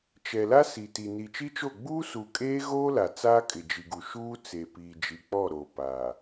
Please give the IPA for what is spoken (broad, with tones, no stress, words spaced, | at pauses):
t͡ʃɛ˨la˦ si˨ti˨ ni˨t͡ʃi˦t͡ʃo˦˨ ɡ͡buː˦su˨ kʼeː˦ɣoː˦la˨ t͡saː˦kʼɪ˨d͡ʒi˨ɡu˨ ʃuː˦t͡se˨ piː˨d͡ʒi˨ k͡pɔ˦˨ɾoː˨ paː˨